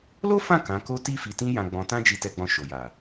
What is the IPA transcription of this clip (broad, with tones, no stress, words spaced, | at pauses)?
lo˦fã˦˨ kã˨˦ko˦ti˦ fi˧tĩ˦jã˧ ɡ͡bɔ̃˧tã˦d͡ʒi˧ tɛ˧ɡ͡bɔ̃˧ ʃo˨ja˨